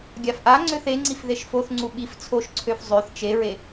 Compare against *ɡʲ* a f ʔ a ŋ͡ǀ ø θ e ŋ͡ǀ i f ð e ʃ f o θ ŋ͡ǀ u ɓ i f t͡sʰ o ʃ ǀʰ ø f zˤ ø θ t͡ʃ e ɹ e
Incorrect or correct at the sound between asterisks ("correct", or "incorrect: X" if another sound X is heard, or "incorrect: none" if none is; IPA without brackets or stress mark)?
correct